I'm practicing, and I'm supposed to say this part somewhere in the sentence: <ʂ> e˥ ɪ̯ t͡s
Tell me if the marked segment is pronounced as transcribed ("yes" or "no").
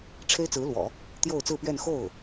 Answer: no